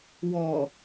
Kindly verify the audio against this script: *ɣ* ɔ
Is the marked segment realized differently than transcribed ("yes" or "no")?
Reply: yes